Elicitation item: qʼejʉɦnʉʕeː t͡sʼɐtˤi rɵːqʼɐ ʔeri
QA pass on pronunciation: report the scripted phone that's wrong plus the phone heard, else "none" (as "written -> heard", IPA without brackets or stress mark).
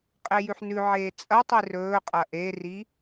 ɦ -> ħ